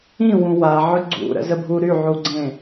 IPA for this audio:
ĩ w ũ w a ʕ œ ɡ͡ǀ ṵ ɾ ə̰ z ə bʱ u ɾ y ʕ u ɡ͡ǀ ẽ

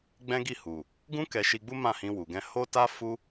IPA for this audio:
ɡ͡b ɛ̃˦ ɡ i˦˨ h u˨ | ɡ ũ˦ k ɛ˧ ʃ i˧ ɡ͡b u˦ m ã˦˨ h ĩ˧ w u˨ ɡ ɛ̃˧ h o˦ t a˦ f u˦

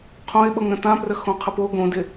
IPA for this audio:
qʰ õ ɪ̯ ɓ ɤ ŋ ɾ ə̃ t ã p r ə x õ qʰ ə p o ɡ õ d ɪ

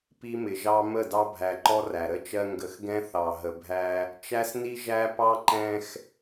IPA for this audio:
p i˦ m ɪ˨ ʒ ɑ˦ m ə˦˨ d ɑ˦ bʱ æ˨ ǃ ɔ˦ r æ˨ ɾ ə˦ t͡ʃ ɜ˦ ŋ ɡ ə˨ x ɡ ɛ̃˦ θ ɑ˨ ɦ ə˨ bʱ æ˦ | t͡ʃ æ˦ s n i˦ ʒ æ˦ p ɑ˦ ǃ ɛ̃˦ x

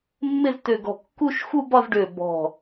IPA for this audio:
mː ɪ˥˧ z t ø˧˩ ɡ ɔ̤˧˩ kː u˥˧ ʃ x u˥˧ b ɒ˥˧ z ɖ ø˧˩ b ɔ̤˧˩

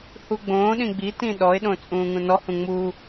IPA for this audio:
h u ɡ͡b õː ɗ ĩ ɡ͡b i t ĩ ɗ ɔ ɪ̯ ɗ õ t͡sʼ ũː ŋ ũ n ɔ h ũ ŋ͡m u

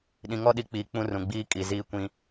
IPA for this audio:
ɗ ĩ˨ ŋ ɔ˦ ɗ i˨ k͡p iː˨ k͡p ũ˦ r ũ˨ ɡ͡b iː˦ kʼ i˨ z iː˦ kʷ ĩ˦

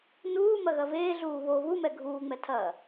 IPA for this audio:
n uː m ɐ ɣ ɐ v eː ɮ uː β o β u m ɛ ɡʱ uː ŋ͡m ɛ tʰ ɐː

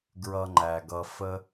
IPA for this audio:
ɡ ɹ ʌ˧ ŋ͡ǃ æ˨ ɡ ʌ˧ f ə˦

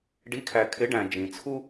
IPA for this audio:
ɖ i˨˥ kʰ æ˨ kʰ ɪ˨˥ ɖ æ̃˨ d͡ʒ ĩ˨ t͡sʰ u˥

